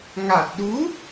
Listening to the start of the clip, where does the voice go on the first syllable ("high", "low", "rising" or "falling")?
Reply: low